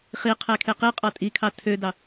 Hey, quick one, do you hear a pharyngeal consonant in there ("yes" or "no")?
no